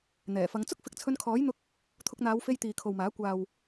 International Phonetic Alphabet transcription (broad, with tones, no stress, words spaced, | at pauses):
n̪ɛː˨˩fɐ˨˧ŋ t͡sʊ˥k̚fɪ˨˥k̚t͡sʰɵ˧nkʰɔː˨˥j n̪ʊ˥k̚ | t̪ʰʊ˧k̚n̪aː˨˧wfe˧j t̪iː˨kʰo˨wmaː˨˥ kʷaː˨w